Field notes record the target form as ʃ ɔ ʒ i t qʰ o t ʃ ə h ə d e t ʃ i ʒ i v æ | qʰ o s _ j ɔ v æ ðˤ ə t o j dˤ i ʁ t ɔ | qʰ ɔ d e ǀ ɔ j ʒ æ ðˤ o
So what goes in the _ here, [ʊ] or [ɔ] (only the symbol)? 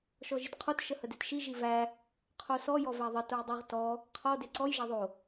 ɔ